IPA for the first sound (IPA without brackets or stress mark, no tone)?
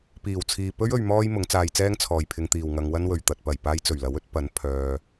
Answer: p